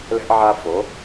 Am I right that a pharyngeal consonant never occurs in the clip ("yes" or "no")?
no